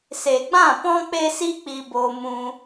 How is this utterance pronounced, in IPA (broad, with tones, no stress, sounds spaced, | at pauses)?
s e˨ ɡ͡b ã˦˨ p ɔ̃˦ k͡p e˦ s i˦ k͡p i˧ b oː˧ m ũ˧